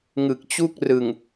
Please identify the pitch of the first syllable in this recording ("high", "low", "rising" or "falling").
low